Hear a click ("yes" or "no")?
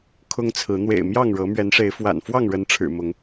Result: no